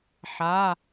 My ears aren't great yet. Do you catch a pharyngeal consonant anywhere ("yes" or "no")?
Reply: yes